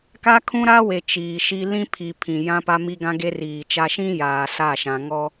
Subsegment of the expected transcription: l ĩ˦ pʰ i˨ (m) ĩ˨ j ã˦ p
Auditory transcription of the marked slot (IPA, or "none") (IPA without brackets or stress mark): pʰ